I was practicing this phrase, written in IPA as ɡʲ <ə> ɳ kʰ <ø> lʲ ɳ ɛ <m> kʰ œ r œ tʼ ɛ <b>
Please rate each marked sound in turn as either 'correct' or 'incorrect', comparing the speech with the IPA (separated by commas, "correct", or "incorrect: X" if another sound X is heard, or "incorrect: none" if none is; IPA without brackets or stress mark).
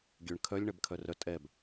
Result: incorrect: ø, incorrect: œ, incorrect: b, correct